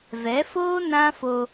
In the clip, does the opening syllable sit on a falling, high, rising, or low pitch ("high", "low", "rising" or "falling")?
rising